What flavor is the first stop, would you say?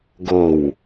plain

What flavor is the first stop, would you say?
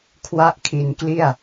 aspirated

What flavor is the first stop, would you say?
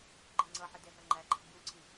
click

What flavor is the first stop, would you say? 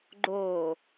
click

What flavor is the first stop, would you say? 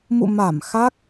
plain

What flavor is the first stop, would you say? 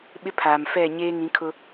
implosive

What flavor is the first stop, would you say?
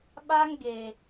implosive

